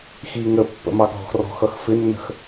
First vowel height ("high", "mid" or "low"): high